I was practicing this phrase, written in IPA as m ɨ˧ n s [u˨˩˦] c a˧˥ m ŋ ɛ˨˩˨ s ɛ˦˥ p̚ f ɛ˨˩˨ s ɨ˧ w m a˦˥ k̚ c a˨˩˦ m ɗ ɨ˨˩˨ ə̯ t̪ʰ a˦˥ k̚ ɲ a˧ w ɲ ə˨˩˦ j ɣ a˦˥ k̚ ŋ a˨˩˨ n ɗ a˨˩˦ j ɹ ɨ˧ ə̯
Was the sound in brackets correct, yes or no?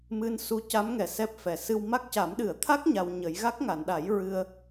no